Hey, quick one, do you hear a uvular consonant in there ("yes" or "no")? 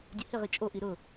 yes